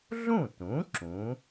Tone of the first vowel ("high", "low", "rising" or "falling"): falling